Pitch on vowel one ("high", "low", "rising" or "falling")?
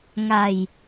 low